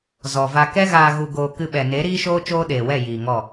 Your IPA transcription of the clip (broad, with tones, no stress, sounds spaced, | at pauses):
z ɔ˨ v a˧ k ɛ˦ ɣ aː˧ ɣ u˧ ɡ oː˧ k ɨ˧ ɓ ɛ˨ n e˨˦ ɾ iː˦ ʃ oː˦ t͡ʃ oː˦ ɗ eː˨ w ɛ˦˨ j iː˨ ŋ ɔ˦˨